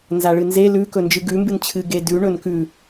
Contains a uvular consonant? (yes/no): no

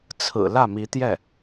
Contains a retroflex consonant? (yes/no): no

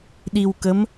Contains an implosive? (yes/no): yes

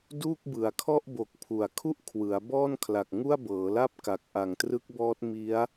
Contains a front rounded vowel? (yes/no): no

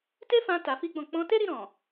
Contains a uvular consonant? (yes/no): no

